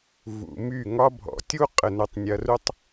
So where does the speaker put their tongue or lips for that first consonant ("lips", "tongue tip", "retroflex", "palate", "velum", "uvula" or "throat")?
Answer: lips